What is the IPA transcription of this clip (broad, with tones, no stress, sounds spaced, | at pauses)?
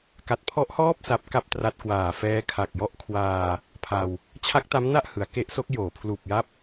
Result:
k a˨˩ t̚ pʰ ɔ˦˥ ʔ h ɔː˥˩ p̚ s a˦˥ p̚ k a˥˩ p̚ t r a˦˥ t̚ k w aː˨˩ f ɛː˦˥ kʰ a˨˩ k̚ j ɔ˦˥ ʔ kʰ w aː˧ | pʰ a˧ w | t͡ɕʰ a˦˥ k̚ t a˦˥ m n a˥˩ ʔ h ɯ˩˦ a̯ k e˦˥ ʔ s o˦˥ k̚ j oː˩˦ pʰ l uː˨˩ p̚ j a˦˥ p̚